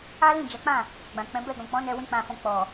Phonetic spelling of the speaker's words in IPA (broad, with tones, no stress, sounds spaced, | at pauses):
a˦ l ĩ˦˨ d͡ʒ a˨˦ k͡p ã˦˨ | ɡ͡b ã˨ k͡p ɛ̃˨˦ b ɛ˦˨ ɡ ɔ̃˨ k͡p ɔ̃˨˦ n ɛ˧ w ĩ˦ k͡p ã˧ f ɔ̃˧ k͡p ɔ˨